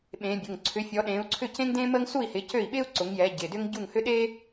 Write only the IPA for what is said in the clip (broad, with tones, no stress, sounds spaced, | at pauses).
ɓ ẽː˨˦ bʲ ʊ˩˧˩ ŋ ǀʰ ʏ˨˦ fʲ ɔ˨˦ ɗ ẽː˨˦ u̯ ǀʰ ʏ˥˨ c ẽ˥ ŋ d ẽː˥ m əː˥ ŋ s u˥˨ i̯ h ɪ˨˦ c ø˥˨ i̯ ɓ ɪː˥ u̯ ǀ ʊ˨˦ ŋ j ɛ˨˦ ɟ ɪ˩˧˩ d ʏ˥ ŋ ɟ u˥˨ ŋ h ʏ˥ ɗ e˥